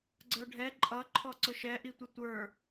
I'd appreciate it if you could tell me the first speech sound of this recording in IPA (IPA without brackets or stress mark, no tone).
ɡ͡ǀ